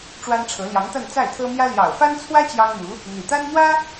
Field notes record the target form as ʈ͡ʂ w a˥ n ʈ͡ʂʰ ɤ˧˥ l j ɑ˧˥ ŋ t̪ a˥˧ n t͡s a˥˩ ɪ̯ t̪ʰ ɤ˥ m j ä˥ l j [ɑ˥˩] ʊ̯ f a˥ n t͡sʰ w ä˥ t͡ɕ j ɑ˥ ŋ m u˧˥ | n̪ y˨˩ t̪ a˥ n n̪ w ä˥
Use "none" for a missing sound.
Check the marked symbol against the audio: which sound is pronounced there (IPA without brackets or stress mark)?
ɑ˨˩